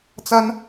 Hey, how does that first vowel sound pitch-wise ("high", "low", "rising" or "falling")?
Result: high